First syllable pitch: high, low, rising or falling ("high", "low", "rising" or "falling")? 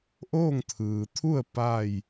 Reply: falling